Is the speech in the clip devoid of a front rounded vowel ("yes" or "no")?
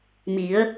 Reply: yes